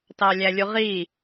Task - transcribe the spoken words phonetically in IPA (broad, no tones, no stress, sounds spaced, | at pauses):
t ɑ lʲ æ lʲ u ʁ i